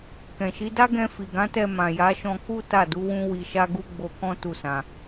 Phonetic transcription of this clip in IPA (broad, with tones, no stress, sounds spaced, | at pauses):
k ɛ̃˨ ʃ i˨˦ d a˦ ɡ ɛ̃˧ f i˨ ɡ ã˨˦ t ɛ˧ m ã˨ j a˨˦ ʃ ɔ̃˧ k u˦ t a˦˨ d u˨˦ w ũ˦ w i˧ ʃ a˦ ɡ u˦ ɡ͡b o˧ k ɔ̃˦ t u˦˨ s ã˧